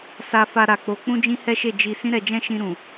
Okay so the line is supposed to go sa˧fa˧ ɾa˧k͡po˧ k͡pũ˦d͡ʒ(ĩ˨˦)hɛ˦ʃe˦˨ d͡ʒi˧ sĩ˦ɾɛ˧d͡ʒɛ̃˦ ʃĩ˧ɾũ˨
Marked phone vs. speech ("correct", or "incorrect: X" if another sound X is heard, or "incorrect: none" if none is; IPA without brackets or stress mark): incorrect: ĩ˦